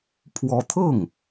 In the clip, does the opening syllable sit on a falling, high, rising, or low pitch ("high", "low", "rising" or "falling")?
rising